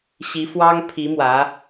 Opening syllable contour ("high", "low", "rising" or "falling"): rising